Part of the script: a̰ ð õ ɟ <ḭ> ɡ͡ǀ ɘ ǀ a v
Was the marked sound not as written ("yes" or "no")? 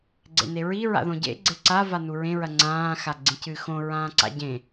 yes